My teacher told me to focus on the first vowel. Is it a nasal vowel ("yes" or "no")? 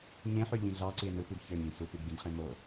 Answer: yes